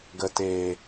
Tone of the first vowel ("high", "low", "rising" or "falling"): low